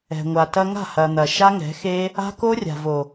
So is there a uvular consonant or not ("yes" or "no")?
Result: no